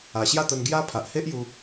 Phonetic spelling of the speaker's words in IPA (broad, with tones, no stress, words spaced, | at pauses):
a˨˩ɕja˥˧t̪ə˧nɡja˦ pʰa˨ʔhe˦ʔju˧